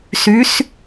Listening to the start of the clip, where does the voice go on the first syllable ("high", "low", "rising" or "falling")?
rising